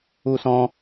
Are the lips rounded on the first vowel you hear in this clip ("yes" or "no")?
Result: yes